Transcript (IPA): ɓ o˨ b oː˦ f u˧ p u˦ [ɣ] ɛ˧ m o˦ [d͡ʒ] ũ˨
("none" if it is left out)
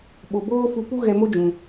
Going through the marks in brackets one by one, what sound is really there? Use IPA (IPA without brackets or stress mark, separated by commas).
ɣ, d͡ʒ